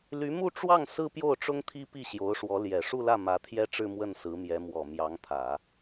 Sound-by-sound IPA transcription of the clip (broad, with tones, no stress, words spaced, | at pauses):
ly˧˥mu˥˧ʈ͡ʂwɑ˥˩ŋ sɹ̩˥pjo˥˩ʊ̯ʈ͡ʂʊ˥ŋ t̪ʰi˥pi˥˩ ɕjo˧˥ʊ̯ʂwɔ˧˥ ljɛ˨˩ʂu˥˧lä˥˩ mä˧˥t̪ʰjɛ˥ʈ͡ʂɻ̩˥˧ mwə˥˩nsɹ̩˧˥mjɛ˧˥ mwɔ˨˩mjɑ˧˥ŋt̪ʰä˨˩˦